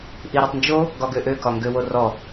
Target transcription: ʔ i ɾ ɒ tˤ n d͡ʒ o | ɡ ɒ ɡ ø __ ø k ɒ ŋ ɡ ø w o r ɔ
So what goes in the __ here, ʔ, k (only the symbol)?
ʔ